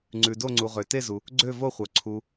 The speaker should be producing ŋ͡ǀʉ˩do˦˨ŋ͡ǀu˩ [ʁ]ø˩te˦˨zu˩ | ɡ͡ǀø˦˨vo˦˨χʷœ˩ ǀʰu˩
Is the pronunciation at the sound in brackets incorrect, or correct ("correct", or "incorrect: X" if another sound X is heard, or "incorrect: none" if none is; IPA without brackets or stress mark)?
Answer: correct